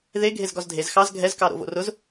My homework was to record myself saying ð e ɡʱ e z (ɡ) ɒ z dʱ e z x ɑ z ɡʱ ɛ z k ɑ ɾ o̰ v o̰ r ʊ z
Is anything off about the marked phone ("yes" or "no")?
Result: no